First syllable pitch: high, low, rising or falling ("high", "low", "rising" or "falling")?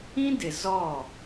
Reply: high